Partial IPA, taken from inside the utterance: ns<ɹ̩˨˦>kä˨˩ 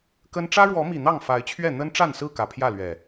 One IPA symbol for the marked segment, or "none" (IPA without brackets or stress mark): ɹ̩˥˨